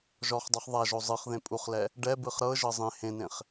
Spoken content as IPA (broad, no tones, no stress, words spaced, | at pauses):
ʒɔχdˤuχ ðˤaʒo zˤɯχ ðẽpʼuχlɛ | ɖɛbɯχ ɾɤʒɤ zˤẽ hẽnẽχ